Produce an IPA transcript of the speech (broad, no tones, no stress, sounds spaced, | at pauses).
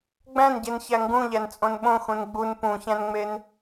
ɡ͡b æ̃ n ɟ e n ç æ ŋ ɡ ũ ʎ æ n t͡sʼ õ n ɓ õ x ũ n ɡ͡b u n p ũ ç æ̃ n ŋ͡m e n